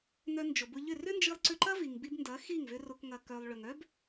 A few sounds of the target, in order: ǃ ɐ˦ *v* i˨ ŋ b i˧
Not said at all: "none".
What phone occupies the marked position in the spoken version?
v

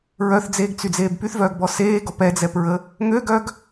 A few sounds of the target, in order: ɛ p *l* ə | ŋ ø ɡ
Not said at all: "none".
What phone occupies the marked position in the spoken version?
ɹ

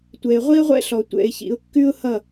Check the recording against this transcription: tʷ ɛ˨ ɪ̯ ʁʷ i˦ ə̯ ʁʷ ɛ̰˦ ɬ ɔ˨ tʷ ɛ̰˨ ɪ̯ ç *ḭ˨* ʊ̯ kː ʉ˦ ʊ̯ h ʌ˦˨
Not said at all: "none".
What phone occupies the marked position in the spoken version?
ḭ˨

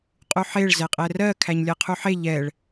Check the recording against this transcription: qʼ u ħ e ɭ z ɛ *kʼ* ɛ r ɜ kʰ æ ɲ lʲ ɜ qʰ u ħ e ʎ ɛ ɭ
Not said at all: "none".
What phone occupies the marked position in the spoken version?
qʼ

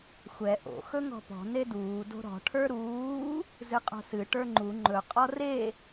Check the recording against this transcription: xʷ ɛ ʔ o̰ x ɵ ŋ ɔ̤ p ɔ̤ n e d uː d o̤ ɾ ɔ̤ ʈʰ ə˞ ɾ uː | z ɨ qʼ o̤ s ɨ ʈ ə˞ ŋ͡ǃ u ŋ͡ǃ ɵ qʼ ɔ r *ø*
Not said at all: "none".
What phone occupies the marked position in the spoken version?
e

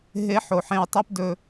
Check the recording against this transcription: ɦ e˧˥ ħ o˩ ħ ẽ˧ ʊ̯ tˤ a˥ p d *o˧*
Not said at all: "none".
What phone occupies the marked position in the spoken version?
ɵ˧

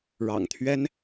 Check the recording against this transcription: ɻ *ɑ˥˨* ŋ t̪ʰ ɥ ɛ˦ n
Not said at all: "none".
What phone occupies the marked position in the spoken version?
ɑ̰˨˩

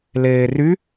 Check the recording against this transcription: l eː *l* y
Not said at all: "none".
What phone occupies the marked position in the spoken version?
r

